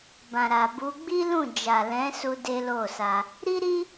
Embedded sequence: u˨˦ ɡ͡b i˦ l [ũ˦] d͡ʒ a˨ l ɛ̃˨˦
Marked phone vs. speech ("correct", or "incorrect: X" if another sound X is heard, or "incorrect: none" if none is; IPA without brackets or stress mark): incorrect: ũ˦˨